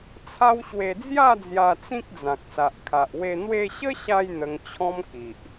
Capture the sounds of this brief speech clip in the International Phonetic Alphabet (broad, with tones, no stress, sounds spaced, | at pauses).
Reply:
t͡sʰ a˦ w ɕ w e˧ d͡z j a˥˧ d͡z j a˧ t͡s ĩ˦ k̚ d͡z ã˨ k̚ s a˨ ʔ kʰ a˨ ʔ w e˧ n̪ w e˧ ɕ ə˦ ɕ a˧ j n̪ ə˧ ŋ t͡ɕʰ ɔ̃˦ m k i˨ ʔ